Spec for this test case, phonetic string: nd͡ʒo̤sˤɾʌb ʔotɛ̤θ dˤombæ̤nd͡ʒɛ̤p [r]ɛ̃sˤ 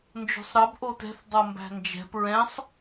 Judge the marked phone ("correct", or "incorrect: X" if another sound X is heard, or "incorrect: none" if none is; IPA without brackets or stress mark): incorrect: ɹ